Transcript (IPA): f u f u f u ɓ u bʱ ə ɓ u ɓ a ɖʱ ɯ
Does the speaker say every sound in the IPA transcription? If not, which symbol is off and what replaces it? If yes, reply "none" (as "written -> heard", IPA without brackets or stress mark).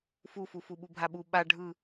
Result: ə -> a